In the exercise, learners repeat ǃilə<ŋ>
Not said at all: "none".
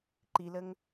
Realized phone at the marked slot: ŋ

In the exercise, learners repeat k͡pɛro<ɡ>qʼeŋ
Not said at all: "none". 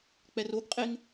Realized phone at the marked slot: ɡ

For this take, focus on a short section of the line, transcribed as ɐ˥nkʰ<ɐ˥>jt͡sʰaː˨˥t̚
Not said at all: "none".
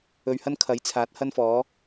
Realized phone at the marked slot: ɐ˨˥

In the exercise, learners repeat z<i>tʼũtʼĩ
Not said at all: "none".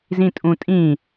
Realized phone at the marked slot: ĩ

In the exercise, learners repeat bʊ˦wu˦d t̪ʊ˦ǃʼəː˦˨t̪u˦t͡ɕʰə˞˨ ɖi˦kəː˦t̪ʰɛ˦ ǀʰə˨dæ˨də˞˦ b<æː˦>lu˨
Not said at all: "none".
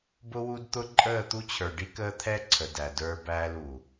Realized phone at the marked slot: æː˦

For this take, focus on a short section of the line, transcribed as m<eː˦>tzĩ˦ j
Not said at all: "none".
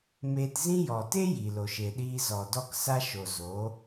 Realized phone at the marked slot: eː˧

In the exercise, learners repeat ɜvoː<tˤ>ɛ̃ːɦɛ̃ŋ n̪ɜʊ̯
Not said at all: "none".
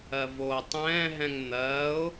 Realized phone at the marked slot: tˤ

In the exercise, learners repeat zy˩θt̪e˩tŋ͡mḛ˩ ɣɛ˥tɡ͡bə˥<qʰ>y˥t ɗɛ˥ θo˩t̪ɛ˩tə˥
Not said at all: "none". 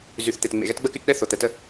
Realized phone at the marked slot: k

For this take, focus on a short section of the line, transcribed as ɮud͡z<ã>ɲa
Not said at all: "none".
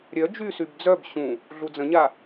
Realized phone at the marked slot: ə̃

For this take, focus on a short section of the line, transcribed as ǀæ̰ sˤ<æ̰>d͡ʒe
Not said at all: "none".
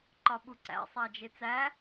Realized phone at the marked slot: æ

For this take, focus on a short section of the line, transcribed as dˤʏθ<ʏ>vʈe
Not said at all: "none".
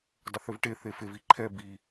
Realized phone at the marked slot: ʏ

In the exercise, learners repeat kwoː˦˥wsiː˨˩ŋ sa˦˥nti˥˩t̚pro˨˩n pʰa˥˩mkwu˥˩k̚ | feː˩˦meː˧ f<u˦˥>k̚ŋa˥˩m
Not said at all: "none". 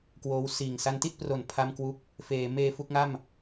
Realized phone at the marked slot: u˥˩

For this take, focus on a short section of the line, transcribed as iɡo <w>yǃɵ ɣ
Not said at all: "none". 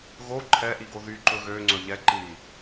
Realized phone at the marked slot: ð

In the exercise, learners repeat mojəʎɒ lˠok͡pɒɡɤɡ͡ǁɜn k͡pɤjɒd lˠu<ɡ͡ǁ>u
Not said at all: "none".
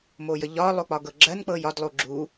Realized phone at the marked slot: ɡ͡ǁ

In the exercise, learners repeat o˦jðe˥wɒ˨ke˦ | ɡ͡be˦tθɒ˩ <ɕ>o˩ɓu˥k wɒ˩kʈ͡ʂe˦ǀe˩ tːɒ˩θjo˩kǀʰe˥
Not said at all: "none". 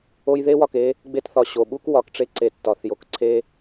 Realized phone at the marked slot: ɕ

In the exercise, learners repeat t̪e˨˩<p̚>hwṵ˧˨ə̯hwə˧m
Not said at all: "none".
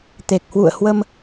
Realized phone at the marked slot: k̚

